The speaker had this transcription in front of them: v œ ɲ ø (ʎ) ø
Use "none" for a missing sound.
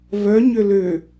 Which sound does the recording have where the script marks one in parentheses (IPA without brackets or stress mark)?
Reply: l